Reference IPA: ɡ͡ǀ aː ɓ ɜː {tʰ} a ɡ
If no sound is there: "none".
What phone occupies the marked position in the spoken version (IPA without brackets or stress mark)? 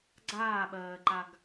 ǃ